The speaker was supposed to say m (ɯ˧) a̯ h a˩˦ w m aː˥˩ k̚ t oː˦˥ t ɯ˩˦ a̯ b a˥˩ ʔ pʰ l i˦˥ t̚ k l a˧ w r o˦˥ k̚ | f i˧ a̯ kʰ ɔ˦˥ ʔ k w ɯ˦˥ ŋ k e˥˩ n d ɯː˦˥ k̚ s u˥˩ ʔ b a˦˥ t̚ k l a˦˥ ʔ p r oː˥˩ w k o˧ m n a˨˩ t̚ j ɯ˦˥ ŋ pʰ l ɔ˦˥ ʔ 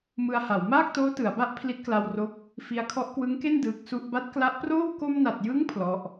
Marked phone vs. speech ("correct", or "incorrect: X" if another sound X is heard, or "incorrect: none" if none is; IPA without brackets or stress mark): correct